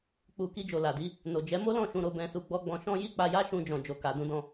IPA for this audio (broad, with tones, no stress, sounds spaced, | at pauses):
k͡p u˨ k i˧ d͡ʒ o˨ l a˨ d i˨˦ | n o˨ d͡ʒ ɛ˨˦ m o˦ l ɔ̃˦˨ ʃ ũ˧ ɾ o˧ b ɛ̃˧ s u˧ ɡ͡b ɔ˦ ɡ͡b ɔ̃˧ ʃ ɔ̃˧ j i˦ k͡p a˧ j a˦ ʃ ũ˧ d͡ʒ ɔ̃˨ d͡ʒ o˨ k a˨ d ũ˧ d ɔ̃˧